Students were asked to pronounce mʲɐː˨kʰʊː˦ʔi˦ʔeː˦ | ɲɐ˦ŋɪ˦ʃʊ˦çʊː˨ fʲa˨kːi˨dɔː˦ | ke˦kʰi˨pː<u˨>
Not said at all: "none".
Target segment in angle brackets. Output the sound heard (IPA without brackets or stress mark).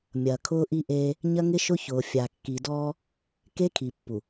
u˨